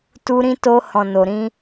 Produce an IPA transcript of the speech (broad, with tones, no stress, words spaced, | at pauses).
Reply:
tu˧ɾĩ˧to˧ hɔ̃˨no˨ɾĩ˧